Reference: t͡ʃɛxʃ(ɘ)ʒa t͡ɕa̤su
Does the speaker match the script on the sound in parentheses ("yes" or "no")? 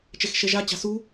no